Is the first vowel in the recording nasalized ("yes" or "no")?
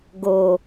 no